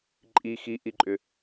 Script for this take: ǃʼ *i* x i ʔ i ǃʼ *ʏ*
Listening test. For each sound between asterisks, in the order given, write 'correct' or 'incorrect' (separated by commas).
correct, correct